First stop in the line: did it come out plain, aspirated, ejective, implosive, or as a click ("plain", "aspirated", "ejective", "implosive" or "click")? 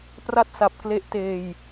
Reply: plain